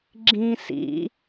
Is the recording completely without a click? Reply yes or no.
no